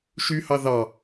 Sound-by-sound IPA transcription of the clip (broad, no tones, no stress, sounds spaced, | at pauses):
ʃ y h ɑ ð ɑ